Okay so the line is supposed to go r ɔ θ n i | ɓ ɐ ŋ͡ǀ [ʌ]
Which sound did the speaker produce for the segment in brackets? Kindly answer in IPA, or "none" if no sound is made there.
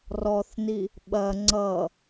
ʌ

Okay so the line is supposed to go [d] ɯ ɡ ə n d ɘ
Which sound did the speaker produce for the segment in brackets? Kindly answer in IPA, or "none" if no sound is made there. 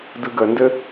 d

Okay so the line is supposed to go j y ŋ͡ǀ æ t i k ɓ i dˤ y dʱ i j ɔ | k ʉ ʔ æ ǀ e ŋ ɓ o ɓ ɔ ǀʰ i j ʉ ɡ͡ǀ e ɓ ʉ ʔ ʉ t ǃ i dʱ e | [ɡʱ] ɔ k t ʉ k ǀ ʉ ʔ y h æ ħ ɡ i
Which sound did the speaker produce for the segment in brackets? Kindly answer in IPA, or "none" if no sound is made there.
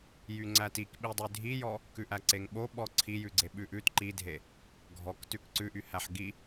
ɡʱ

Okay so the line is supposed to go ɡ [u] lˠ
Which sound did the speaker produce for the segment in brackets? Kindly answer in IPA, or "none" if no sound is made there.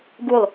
u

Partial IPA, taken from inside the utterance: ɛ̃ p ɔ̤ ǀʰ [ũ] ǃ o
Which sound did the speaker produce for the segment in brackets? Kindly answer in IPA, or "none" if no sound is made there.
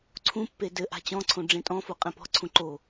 ũ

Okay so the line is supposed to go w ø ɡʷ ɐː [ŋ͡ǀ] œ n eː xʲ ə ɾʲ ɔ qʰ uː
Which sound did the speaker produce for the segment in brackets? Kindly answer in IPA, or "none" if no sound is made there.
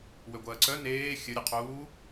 ǀ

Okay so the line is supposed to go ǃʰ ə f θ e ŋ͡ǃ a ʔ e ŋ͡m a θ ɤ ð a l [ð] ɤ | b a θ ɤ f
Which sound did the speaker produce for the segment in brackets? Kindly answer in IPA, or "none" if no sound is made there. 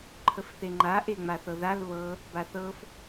β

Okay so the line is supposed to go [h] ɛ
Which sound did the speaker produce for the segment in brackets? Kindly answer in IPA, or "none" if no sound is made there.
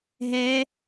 ɦ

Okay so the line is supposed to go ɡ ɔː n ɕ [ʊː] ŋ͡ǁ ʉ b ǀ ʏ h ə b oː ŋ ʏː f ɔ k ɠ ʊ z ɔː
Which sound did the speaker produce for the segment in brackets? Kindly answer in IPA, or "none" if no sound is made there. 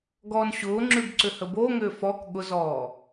ʊː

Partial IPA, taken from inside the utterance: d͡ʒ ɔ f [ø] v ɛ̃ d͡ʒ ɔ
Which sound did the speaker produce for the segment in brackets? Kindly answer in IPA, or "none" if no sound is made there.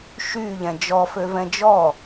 ø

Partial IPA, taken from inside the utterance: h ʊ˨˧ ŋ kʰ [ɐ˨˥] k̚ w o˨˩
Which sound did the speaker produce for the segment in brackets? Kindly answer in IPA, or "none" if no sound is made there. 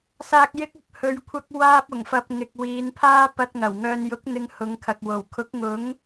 ɐ˨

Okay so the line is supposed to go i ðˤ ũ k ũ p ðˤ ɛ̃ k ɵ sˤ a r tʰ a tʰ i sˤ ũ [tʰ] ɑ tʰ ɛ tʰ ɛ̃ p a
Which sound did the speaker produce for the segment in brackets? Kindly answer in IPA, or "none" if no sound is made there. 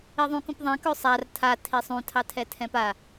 tʰ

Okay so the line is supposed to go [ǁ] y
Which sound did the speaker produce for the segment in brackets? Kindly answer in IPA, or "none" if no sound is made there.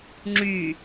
ŋ͡ǁ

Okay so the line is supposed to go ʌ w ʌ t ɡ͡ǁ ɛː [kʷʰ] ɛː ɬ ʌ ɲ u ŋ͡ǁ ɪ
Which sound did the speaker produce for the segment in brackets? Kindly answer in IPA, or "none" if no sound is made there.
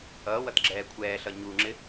kʷʰ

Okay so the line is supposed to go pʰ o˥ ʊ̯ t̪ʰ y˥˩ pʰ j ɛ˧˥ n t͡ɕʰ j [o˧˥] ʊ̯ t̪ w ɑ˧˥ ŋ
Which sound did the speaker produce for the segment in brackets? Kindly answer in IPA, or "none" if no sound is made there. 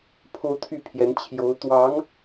o˧˥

